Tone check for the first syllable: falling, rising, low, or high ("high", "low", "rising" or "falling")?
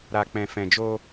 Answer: low